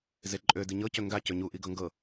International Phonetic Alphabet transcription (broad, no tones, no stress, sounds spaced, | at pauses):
z e ǃʼ ø d i ɲ ɤ c ø ŋ ɡ a c ø ɲ u ʔ i ɡ ɤ ŋ ɡ ɤ